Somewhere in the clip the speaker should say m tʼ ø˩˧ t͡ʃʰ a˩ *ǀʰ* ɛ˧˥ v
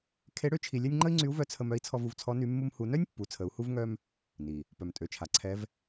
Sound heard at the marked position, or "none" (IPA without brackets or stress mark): ǀʰ